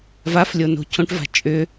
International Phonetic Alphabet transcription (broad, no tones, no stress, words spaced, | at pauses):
vaflʲo no̤cʰõʈ va̤t͡ʃʼʏ